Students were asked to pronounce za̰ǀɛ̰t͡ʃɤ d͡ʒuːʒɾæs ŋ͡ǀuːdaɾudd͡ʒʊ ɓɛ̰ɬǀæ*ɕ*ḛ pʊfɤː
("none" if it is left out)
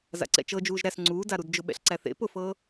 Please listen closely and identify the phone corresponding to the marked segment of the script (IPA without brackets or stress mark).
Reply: θ